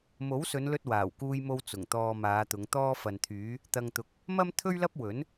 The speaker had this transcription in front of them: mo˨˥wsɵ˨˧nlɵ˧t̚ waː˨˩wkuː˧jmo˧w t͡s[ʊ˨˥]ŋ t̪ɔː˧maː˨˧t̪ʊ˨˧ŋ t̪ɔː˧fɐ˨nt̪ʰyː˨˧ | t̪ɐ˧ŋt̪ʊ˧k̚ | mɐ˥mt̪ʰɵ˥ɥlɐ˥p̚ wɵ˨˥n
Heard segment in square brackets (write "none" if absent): ʊ˨˩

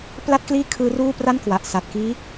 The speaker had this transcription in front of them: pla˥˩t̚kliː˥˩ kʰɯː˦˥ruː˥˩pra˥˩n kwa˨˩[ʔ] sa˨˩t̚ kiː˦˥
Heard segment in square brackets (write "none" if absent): ʔ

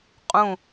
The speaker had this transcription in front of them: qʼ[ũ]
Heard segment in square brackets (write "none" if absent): ũ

